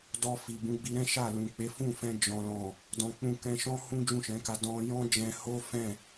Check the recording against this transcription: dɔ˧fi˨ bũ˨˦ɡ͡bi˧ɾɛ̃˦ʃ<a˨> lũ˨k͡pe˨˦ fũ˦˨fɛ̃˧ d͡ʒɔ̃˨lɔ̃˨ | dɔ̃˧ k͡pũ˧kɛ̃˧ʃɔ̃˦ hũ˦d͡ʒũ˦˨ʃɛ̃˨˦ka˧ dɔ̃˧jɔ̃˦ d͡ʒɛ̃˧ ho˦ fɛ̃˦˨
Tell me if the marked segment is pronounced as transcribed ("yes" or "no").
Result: no